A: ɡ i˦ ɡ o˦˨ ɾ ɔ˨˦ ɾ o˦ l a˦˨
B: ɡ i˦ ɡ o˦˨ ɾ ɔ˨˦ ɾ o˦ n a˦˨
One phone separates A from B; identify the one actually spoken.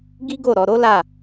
A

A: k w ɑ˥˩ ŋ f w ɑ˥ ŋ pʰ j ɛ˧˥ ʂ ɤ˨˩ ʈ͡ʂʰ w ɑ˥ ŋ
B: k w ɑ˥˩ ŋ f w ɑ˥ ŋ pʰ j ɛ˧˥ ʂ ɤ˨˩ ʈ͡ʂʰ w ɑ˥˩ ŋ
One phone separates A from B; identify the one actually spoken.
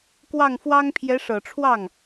B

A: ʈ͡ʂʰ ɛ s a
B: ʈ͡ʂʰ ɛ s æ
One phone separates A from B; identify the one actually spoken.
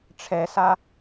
A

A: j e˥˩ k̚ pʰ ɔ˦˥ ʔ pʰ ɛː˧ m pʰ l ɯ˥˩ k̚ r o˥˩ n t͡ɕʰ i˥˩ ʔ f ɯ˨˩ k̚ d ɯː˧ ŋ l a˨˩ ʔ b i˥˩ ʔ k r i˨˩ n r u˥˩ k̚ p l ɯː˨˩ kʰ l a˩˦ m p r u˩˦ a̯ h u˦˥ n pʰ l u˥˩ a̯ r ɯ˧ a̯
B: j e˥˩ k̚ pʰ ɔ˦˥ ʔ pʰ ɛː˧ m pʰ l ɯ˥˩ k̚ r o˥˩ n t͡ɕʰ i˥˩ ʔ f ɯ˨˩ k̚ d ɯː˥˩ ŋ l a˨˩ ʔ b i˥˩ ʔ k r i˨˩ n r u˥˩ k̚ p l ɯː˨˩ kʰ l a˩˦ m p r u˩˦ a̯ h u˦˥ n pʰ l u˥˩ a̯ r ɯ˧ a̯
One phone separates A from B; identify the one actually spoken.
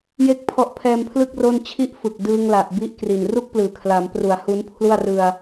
A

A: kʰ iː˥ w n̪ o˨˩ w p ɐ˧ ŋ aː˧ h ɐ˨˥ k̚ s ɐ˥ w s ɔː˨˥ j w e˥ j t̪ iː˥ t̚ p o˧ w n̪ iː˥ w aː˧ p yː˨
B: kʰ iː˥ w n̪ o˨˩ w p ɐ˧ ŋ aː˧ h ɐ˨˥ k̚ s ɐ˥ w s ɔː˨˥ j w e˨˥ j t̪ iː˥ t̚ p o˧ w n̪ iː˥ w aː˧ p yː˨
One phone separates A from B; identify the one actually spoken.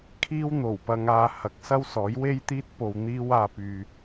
A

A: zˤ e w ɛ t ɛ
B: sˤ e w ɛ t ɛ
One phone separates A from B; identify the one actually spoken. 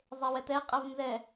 A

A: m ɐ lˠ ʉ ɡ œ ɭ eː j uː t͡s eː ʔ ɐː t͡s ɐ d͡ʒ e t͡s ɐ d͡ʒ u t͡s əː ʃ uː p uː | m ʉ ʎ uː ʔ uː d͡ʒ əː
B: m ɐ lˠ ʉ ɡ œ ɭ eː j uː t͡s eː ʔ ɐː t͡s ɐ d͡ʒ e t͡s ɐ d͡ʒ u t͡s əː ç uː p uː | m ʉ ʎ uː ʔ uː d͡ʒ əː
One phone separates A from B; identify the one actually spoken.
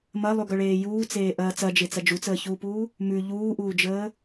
B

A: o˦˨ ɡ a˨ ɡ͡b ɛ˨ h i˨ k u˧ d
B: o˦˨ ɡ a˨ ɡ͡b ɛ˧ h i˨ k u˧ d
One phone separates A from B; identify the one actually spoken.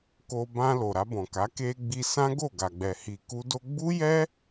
A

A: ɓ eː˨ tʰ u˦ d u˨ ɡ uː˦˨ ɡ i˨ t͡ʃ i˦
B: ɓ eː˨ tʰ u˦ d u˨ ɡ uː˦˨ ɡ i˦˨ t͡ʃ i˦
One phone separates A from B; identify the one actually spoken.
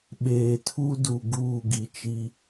A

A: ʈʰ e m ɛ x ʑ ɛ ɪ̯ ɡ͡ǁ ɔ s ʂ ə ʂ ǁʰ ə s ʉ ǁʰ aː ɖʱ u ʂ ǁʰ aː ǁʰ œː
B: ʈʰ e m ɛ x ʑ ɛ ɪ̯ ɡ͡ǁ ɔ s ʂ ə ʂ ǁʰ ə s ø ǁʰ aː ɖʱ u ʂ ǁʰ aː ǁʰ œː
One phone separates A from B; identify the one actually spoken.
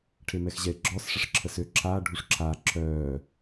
B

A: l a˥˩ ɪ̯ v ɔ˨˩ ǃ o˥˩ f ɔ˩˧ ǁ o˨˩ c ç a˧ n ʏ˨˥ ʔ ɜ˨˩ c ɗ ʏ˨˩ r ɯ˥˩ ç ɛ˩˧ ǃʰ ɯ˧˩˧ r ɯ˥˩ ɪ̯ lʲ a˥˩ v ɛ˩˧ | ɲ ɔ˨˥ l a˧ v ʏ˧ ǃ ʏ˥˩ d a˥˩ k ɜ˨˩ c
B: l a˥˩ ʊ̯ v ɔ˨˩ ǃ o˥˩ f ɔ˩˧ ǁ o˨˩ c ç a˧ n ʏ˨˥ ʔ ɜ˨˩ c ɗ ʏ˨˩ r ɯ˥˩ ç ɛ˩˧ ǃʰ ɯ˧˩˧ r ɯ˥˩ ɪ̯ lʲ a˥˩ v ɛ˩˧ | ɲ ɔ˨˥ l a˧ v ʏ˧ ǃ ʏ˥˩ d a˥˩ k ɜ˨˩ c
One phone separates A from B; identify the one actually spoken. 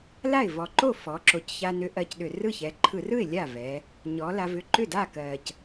A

